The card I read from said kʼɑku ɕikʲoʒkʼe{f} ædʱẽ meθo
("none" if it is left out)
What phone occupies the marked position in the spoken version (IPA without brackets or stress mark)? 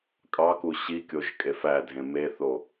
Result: f